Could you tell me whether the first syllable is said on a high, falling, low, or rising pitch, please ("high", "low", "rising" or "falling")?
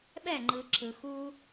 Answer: falling